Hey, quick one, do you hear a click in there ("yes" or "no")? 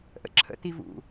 yes